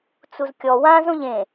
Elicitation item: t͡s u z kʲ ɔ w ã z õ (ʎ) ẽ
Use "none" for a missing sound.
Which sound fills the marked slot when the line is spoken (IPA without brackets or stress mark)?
ʎ